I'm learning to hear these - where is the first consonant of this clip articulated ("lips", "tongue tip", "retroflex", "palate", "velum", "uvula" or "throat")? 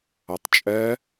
tongue tip